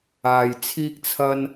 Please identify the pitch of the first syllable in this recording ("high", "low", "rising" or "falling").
low